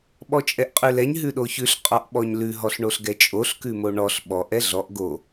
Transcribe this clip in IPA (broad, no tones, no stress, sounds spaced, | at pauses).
ɓ ɔ t͡ʃʼ ɛ ʔ qʼ ʉ l ɛ ɲ ɦ ʉ ɗ o ç ʉ ɬ qʼ ɔ ʔ ɓ ɔ ɲ l ʉ ɦ ɔ ɬ ɳ o ɬ ɡ ɛ t͡ʃʼ o ɬ k ʉ m o ɳ ɔ ɬ ɓ ɔ ʔ ɛ ɮ ɔ ʔ ɡ o